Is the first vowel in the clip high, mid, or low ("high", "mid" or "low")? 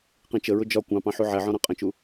high